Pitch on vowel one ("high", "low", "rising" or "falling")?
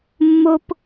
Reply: high